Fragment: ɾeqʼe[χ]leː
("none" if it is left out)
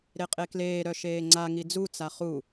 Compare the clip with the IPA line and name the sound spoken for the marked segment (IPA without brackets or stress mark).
k